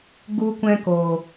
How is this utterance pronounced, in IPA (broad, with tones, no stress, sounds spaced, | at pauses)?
ɡ u˧ kʷ ɛ̃˦ k o˨